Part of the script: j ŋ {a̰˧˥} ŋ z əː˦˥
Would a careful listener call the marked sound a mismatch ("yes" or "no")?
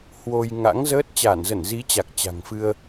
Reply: no